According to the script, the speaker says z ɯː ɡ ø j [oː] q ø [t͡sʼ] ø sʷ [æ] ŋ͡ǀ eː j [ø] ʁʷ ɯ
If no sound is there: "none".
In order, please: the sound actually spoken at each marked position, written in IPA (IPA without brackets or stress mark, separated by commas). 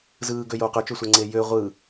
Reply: oː, t͡ʃ, æ, ø